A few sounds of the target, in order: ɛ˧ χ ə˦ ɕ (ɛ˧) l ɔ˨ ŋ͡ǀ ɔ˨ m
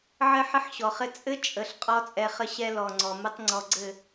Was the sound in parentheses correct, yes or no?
no